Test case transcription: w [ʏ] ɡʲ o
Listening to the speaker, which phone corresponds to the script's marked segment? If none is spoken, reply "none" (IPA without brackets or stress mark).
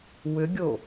ʏ